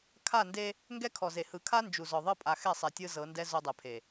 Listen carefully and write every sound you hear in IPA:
kʰa˦˨nde˦ | ŋɡɛ˦kʰɔ˨ze˨ hɯ˨kʰa˦ nd͡ʒu˨zɔ˨ðˤɤ˦ pʼa˨xɛ˦˨sˤɛ˨ tʲɯ˦ zɤ˨˦ndɛ˦ zo˦dˤɛ˨pʰe˨

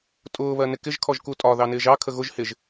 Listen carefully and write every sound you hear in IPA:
tʼʊː βɜnɪkɪʒ kʰɔʒkutʼɒ ðɑnɪːʒɑ kʰəɣʊʒ hɪʒ

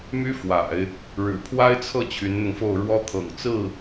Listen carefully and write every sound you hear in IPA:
my˥fwa̰˨˩˦ɪ̯ | ɻɻ̩˨˩ pʰwa˥ɪ̯t͡sʰɤ˥˩ t͡ɕʰy˧˥nn̪ʊ˧ŋfo˥˩ʊ̯ɻwɔ˥ t̪ʰɤ̰˨˩ŋt͡sɹ̩˥˩

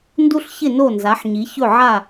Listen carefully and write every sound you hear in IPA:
ndu˦ɬçɪ˦˨ no˦˨nza˨˦ħɲi˨˦ çɵ˦˨ʕa˦˨

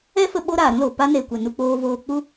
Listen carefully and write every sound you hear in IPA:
ɛ˦fə˧ ɓo˦ɾaː˨ɾũ˦lo˨ pa˦ne˨kʷɛ˨ nu˧k͡poː˧voː˧ k͡pu˦

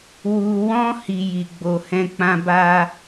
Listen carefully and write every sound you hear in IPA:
wu˧wɔ̃˦ hi˦ji˧ ɡ͡bo˦ hɛ̃˦k͡pã˦ ba˦

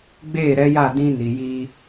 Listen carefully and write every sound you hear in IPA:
ɡ͡beː˦˨ɾɛ˦ja˦˨ dĩ˦ ni˨ji˦

